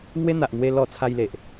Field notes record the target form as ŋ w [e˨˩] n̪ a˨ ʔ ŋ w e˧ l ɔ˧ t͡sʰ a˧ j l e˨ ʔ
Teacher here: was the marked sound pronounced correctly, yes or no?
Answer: no